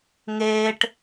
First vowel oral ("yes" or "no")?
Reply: yes